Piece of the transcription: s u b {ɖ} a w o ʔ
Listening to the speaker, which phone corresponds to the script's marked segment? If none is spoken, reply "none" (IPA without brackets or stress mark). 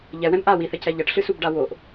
ɖ